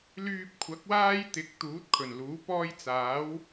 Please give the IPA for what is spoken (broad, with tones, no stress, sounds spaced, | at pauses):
l yː˧ p̚ kʷʰ ɐ˨˥ k̚ w aː˥ j t̪ ɪ˨˥ k̚ t̪ uː˨˥ t̚ kʰ ɵ˨˩ n l uː˨˥ p ɔː˥ j t͡s aː˨˥ w